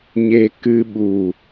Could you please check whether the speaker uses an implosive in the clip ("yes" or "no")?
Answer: yes